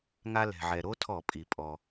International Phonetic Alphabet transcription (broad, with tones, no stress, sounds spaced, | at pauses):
ŋ a˧ l ɛ̤˩ ʕ ɛ˩ ɾ o˦˥ tʰ ɔ˧˩˧ pʼ i˩ pʼ ɔ˩